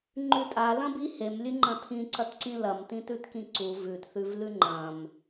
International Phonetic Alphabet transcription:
ŋ͡ǃ ʉ tʼ a l ɐ̃ b i h e m lʲ ɨ ŋ͡ǃ ɐ̃ tʰ ĩ ǀ ɐ t ǀ ĩ l ɐ m t ĩ t ʉ t k ĩ ǀ u v ʉ t θ ʉ v l ʉ ŋ͡ǃ ɐ̃ m

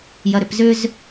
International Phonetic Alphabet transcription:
j ɐ ɾ ʏ p z ʏ z

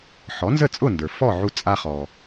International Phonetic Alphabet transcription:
ħ ɔ˩˥ n z ə˥˩ t͡sʼ ʊ˥˩ n d ə˞˩ f ɔ˥˩ ʕ u˧ t͡sʼ a˧ χ ɔ˩

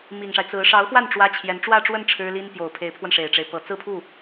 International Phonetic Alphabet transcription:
m i˨˩ ŋ ʂ a˦ ɪ̯ t͡s ɹ̩˧˥ ʂ ɑ˧˥ ʊ̯ x w a˥˩ n ʈ͡ʂ w ä˥ t͡ɕʰ j ɛ˧˥ n ʈ͡ʂ w ä˥˧ ʈ͡ʂ w ə˥˩ n ʈ͡ʂʰ ɻ̩˥ l i˥ n p j o˨˩ ʊ̯ pʰ e˧˥ ɪ̯ pʰ w ə˧ n ʂ e˨˩ ɪ̯ ʈ͡ʂ e˦ ɪ̯ p ɤ˨˩ t͡s ɹ̩˥˧ pʰ u˥˩

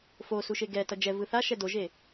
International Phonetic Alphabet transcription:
f o s u ʃ e ɡ ɛ t ʌ d͡ʒ ɛ v ɯ θ a ʃ ɛ d o ʒ e

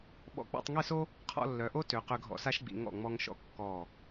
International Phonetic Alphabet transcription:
ɓ ɔ̰˧ k͡p ɔ̰˧ tˤ ŋ e˥˧ s o˥ | qʰ ɔ̰˥˧ lː œ˩˧ ʔ o˥ t ø˩˧ q ø˧ ɡʱ ɔ̰˧ s a˥ ʃ ɡ͡b ḭ˩˧ ŋ ɔ̰˧˩ ŋ͡m ɔ˧ ŋ ʃ ɔ̰˧ kː ɔ˧˩

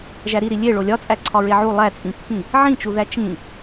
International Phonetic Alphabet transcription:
ʒ æ ɾ i ɾ i lʲ e ɭ o lʲ ɒ t͡sʼ æ ǀʰ ɒ ɹ e ʕ u lˠ æ t͡sʼ ĩ pː ĩ | ʕ ĩ t͡ʃ u ð æ t͡ʃ ĩ

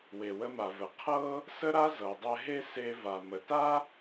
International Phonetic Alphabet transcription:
w e˩ w ə˧ m a˩ v ə˩ qʰ ɤ˥ | s ə˥ ɾ a˥ z ɤ˩ dˤ ɛ˧ ɦ e˥ s e˧ v a˩ m ə˩ t a˥

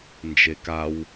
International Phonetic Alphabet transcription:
n d͡ʒ e k a w

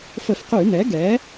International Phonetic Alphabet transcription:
f ə˧˩˧ f q y˧˩˧ n ɛ˩˥ ɡ ɛ˩˥

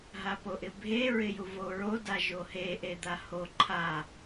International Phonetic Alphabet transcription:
ɦ a p o ʔ ɪ bʱ e ɹ ɪ j u v o ɹ o d a ʒ o h e ʔ e d̪ a h o ǃʰ a

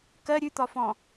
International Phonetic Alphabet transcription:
k ɜ ɾʲ ʉ t̪ ɒ f ɔ̃

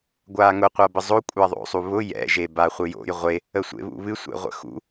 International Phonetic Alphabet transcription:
ɡʷ aː ŋ ʊ qʷ a b ə zˤ o kʷʼ a ðˤ o̰ sˤ u β ʊ j ɛ̰ ʒ e b a χʷ ɨ j o̰ j ʁʷ e | ə sʷ ḛ β ṵ β ɨ sʷ ḛ ʁʷ ə̰ x ṵ

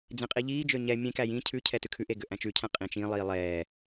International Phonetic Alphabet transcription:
d͡z ẽ qʼ i ʎ iː d͡ʒ ø ɲ ɛ mʲ ẽ k æ j ĩ cʰ ʉ cʰ ɛ t ʉ kʰ ʉ ʔ e ɡ ø ʔ æ̃ t͡ʃ ʉ cʰ æ̃ qʼ ĩ t͡ʃ ĩ lˠ iː lˠ ɛː

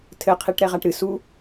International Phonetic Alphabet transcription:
tʰ ɘ qʰ i ʈ ɾ ɛ ʁ a ʈ ɾ ɨ s u

